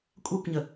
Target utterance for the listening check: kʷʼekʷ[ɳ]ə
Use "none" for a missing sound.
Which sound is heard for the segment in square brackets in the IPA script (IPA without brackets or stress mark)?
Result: ɲ